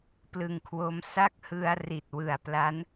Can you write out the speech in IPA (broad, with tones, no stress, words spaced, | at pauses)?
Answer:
plɯ˨˩ŋkʰwo˧m sa˥˩k̚hɯ˧a̯ ri˨˩t̚wɯ˨˩a̯pla˦˥n